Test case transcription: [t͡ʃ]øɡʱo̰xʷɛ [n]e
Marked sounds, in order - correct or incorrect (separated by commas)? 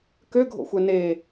incorrect, correct